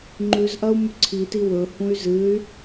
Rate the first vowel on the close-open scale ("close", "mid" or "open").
close